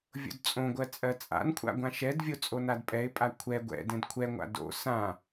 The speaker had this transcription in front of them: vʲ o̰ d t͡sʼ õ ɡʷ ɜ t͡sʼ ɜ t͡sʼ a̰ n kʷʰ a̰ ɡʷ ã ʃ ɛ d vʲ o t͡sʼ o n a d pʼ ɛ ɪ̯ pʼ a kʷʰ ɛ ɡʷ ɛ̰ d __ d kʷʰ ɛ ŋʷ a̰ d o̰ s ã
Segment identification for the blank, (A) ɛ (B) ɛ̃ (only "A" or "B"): B